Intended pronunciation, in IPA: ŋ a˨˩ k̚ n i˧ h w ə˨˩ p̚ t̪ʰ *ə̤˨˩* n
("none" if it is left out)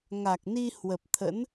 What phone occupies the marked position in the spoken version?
ə̰˧˥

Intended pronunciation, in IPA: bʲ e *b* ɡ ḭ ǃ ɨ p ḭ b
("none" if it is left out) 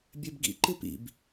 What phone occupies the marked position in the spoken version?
b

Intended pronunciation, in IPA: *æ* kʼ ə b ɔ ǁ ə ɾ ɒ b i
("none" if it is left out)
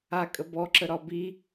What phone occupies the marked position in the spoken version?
a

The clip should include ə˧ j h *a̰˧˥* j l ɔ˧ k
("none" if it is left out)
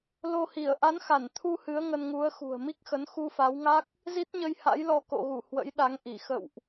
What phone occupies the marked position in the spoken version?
a̰˧˥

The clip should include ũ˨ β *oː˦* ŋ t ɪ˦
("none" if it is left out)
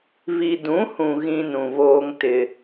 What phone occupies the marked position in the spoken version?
oː˦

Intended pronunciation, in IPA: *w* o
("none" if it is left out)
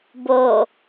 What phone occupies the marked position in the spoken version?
b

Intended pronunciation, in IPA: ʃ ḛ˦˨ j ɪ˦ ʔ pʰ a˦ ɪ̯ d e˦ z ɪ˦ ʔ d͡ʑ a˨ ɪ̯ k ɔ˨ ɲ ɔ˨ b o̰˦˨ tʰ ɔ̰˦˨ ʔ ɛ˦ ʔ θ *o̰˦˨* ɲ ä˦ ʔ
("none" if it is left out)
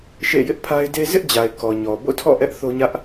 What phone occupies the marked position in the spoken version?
o˦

